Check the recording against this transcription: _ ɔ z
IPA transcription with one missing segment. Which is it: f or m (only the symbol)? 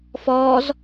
f